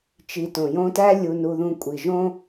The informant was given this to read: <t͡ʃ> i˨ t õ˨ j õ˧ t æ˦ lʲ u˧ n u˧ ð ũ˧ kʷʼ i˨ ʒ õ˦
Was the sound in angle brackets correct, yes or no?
yes